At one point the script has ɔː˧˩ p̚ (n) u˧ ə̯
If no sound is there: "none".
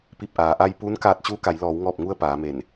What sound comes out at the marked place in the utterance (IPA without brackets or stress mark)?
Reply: ŋ